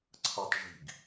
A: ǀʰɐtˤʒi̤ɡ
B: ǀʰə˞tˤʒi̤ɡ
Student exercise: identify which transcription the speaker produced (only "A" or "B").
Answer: A